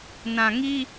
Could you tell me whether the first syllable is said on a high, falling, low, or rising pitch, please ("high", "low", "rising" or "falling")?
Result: low